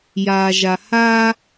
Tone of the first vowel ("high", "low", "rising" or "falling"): low